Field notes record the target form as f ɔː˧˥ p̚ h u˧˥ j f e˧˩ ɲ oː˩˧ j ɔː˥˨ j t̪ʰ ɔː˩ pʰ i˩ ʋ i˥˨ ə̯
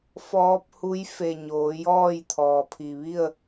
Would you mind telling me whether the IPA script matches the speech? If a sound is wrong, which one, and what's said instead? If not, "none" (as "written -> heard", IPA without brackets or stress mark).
none